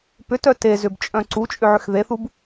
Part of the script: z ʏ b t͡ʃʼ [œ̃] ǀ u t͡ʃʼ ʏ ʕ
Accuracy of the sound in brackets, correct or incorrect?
correct